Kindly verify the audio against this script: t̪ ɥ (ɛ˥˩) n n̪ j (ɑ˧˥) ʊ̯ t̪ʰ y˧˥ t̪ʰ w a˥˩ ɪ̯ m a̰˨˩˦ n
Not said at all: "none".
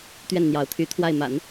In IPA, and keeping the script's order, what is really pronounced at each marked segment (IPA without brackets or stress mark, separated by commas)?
ɛ˥˩, ɑ˧˥